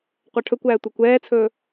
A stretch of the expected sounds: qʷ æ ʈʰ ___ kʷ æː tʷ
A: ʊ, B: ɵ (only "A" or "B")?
B